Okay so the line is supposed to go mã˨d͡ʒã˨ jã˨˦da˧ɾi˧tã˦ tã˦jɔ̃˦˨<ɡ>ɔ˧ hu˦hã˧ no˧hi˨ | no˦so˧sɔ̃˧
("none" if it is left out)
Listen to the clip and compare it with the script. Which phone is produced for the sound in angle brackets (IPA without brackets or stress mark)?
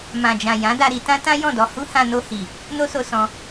d